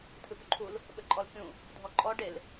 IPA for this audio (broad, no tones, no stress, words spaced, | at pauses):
tʰɨpuǃʰul | ɓɘǃʼɔlkʲũ | dʱɔǃʼɔ ɖel